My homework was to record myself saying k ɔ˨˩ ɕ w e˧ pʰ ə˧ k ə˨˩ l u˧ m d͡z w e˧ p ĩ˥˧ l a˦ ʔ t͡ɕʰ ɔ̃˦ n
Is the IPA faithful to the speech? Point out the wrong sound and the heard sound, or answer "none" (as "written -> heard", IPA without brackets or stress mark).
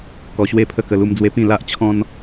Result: none